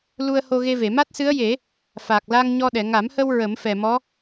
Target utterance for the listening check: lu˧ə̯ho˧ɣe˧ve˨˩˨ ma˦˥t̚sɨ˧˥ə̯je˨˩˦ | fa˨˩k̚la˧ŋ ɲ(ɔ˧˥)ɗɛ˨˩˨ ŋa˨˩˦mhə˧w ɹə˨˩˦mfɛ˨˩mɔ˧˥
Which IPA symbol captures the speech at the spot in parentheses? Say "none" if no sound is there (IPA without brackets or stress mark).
ɔ˧